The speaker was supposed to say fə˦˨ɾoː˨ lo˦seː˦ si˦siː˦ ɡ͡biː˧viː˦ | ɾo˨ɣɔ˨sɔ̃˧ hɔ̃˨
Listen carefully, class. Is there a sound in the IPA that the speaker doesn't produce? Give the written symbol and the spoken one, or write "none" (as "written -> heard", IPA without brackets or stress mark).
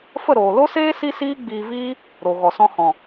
none